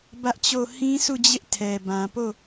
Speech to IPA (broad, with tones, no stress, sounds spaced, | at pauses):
b ä˦ ʔ t͡ɕ o˦˨ h ĩ˦ sʰ u˦˨ d͡ʑ ɪ˦ ʔ tʰ ɛ˨ b ã˨ p o˦˨